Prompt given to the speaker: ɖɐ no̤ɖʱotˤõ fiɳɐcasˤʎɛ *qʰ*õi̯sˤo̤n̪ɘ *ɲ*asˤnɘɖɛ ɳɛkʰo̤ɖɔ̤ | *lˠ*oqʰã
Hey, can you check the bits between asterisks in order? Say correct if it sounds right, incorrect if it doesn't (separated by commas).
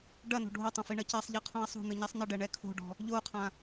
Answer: correct, correct, incorrect